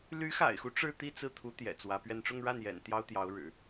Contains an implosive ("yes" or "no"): no